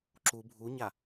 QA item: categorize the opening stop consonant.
click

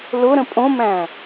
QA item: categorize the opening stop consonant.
ejective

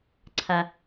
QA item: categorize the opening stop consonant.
click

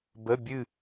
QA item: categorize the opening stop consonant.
plain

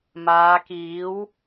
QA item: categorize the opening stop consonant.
plain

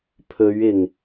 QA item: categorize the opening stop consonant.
aspirated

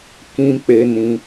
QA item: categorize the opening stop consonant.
plain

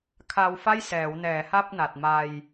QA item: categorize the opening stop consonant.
aspirated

